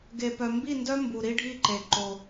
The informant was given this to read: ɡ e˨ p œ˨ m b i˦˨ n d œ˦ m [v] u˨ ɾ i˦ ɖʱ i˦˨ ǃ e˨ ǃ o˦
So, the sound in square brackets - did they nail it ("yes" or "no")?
no